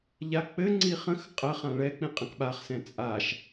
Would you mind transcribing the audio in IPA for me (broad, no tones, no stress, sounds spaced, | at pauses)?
ʎ a k͡p ɘ ŋ͡ǀ i χ ə̃ x qʼ ə χ ã ɭ ɛ k͡p ĩ qʼ ə̃ k ɓ a χ s ɛ̃ t͡sʼ a ʃ